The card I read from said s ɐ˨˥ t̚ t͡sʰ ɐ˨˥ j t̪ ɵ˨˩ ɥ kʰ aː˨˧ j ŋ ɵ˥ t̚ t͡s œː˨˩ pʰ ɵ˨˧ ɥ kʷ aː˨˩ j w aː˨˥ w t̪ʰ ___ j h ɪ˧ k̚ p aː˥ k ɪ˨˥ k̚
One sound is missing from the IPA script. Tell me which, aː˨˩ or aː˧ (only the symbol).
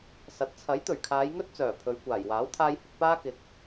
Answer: aː˧